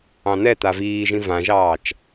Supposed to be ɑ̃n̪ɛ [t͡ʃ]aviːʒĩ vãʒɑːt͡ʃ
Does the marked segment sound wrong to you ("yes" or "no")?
yes